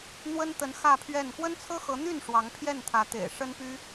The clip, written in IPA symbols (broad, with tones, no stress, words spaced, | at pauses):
n̪wə˥nt̪ə˧˥n xä˥˧pʰɥɛ˥˩n kwə˥nt͡sʰɤ˥xɤ˧˥n̪y˥˩n ʂwɑ˧˥ŋpʰjɛ˥˩nt̪ʰä˧˥ t̪ḛ˨˩ɪ̯ ʂə˥npy˥